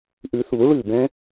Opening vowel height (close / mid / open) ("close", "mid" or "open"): close